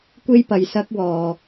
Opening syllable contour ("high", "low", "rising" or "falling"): high